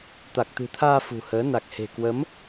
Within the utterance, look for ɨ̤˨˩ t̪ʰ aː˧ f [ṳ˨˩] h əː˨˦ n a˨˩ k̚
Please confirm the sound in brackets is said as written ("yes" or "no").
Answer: yes